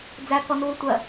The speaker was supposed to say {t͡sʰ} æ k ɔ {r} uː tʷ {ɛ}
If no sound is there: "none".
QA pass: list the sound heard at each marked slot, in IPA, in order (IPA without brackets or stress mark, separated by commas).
d͡z, n, ɜ